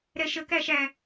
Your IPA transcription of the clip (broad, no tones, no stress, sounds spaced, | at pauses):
ɾ ɛ ʃ ə k æ ʃ æ